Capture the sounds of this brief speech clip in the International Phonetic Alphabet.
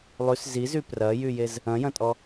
lˠ y s z i z y p r ɐ j y j e z | ɐ̃ j ɐ̃ tʼ ɔ

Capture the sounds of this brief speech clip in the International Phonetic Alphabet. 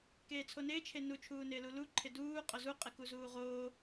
k eː t͡sʰ o n ɪː t͡ʃʰ e n u t͡ʃʰ uː n ɪː l u l u ǃʰ ɪ d uː qʼ ʊ z u qʼ ɪ k u z uː ʁ oː

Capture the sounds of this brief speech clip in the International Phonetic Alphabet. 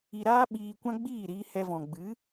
i˧ ɾ aː˦ ɓ iː˧ kʷ ã˦ ɡ͡b iː˦˨ ɾ iː˧ h ɛ˧ v ɔ̃˨ ɡ͡b ɨ˨˦

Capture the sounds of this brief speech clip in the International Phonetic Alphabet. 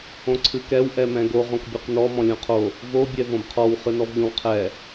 õ ǀʰ ɨ k ɛ w ʔ ɛ m ɛ̃ ɡ o ʁ õ k bʲ o q n ɔ m ɔ̃ lʲ õ qʰ o | v o bʲ ɛ v õ b qʰ ɔ w χ ɨ n ɔ v ʎ õ w qʰ ɛ

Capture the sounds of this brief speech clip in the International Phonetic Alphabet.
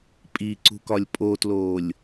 pʼ i ǀ ṳ k ɒ lʲ pʼ o t l oː lʲ

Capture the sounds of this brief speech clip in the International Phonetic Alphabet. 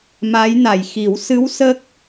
m a˧˥ j n a˨˩ j x i˨˩˦ w s ɨ˧˥ w s ə˦˥ k̚

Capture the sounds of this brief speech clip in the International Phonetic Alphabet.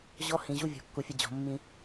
ʑ ɔ˦ h ĩ˨ ʑ u˦ vʲ ɔ̤˨ kː u˨ fʲ ʌ˦ d͡ʑ ɔ̤˨ mː ĩ˦

